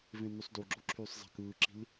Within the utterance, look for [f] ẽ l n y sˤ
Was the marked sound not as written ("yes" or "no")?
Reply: yes